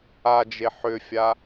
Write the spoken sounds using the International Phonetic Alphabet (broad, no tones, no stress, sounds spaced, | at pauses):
a d͡ʒ e ħ ʏ fʲ a